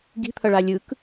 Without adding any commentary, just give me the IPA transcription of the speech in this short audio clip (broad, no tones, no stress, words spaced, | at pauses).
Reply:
ɡi̤t̪ʰʌɭa lʲɯk